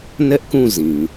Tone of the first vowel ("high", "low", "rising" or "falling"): high